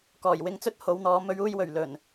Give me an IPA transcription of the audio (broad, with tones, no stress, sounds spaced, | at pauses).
k ɔː˨˩ j w ɪ˨ ŋ t͡s ɵ˥ t̚ h o˨˧ w n̪ ɔː˨˧ m ɵ˨˧ ɥ uː˧ j w ɵ˨˩ ɥ l ɵ˨˩ n